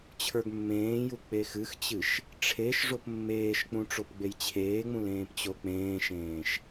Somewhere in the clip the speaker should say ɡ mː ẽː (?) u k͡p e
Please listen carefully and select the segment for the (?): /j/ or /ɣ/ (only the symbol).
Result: j